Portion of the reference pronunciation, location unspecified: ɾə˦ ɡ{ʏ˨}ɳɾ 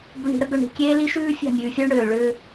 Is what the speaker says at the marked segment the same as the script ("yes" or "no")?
yes